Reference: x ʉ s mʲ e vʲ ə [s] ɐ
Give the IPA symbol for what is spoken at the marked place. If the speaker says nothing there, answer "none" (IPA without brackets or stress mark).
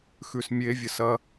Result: s